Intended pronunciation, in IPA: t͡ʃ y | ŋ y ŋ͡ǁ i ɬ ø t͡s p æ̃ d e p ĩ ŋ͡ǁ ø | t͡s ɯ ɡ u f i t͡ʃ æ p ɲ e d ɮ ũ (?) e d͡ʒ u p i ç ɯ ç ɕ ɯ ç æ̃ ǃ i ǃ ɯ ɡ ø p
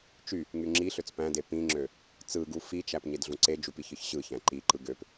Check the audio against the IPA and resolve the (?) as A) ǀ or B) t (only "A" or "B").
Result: A